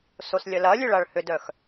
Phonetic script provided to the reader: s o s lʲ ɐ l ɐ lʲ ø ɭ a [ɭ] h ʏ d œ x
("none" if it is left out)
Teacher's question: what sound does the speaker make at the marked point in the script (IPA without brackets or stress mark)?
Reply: ɭ